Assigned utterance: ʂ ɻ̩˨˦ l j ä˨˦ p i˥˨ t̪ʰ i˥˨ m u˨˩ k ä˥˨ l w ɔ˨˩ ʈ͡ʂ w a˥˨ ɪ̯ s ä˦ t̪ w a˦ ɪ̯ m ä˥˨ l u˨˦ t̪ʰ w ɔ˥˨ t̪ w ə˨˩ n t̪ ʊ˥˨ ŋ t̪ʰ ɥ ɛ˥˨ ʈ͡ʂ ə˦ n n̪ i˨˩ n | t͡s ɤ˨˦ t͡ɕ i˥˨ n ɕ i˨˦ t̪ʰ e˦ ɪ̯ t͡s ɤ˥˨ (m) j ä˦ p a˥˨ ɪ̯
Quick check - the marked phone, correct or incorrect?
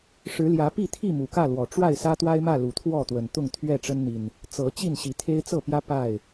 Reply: incorrect